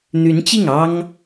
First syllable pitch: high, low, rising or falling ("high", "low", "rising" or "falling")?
rising